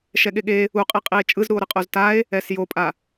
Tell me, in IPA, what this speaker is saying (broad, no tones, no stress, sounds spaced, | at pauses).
ʃ ɛ ɠ e ɠ e | u qʼ i qʼ i e̯ t͡ʃʼ ɯ z ɾ u o̯ ɾ ɯ qʼ o z t a e̯ | ɛ s j o pʼ a